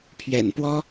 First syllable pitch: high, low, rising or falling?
low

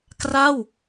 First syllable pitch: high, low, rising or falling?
falling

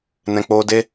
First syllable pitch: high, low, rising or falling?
low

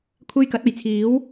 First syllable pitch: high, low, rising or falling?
high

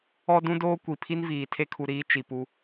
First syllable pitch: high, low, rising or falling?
high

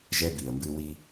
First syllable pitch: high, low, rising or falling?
high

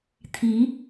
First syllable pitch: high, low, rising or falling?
rising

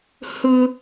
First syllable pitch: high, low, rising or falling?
high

